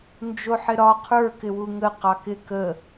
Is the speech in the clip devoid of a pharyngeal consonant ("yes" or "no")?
no